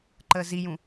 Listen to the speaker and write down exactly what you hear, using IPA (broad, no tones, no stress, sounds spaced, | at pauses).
ǃ əː z i j ũ